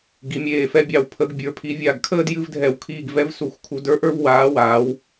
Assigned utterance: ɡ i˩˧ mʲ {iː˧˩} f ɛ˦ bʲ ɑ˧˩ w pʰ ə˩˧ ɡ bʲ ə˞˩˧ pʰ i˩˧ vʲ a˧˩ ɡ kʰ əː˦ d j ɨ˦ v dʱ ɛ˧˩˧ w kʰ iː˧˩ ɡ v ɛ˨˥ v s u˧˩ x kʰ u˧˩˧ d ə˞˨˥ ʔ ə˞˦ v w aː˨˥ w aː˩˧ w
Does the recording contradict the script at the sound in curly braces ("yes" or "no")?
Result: yes